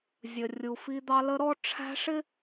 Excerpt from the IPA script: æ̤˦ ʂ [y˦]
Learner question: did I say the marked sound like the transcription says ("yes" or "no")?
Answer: no